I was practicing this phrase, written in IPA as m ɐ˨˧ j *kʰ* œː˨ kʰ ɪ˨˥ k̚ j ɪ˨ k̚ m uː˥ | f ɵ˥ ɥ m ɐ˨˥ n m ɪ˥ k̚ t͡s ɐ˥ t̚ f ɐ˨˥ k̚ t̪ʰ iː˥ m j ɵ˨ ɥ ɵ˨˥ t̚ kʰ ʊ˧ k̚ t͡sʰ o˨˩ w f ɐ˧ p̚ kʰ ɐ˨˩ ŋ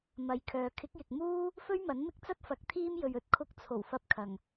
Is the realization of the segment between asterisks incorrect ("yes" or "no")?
no